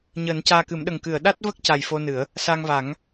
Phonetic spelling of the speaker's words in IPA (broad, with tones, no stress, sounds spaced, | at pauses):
ɲ əː˨˩˦ n c aː˧ k ɨ˨˩˦ m ɗ ə˨˩ ŋ k ɨ˨˩˨ ə̯ ɗ a˦˥ t̚ v ə˦˥ k̚ c a˨˩ j f o˧ n ɨ˨˩˦ ə̯ | s a˧ ŋ v a˨˩˦ ŋ